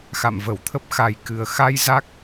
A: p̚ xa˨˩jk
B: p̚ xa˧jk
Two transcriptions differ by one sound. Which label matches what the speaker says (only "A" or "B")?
A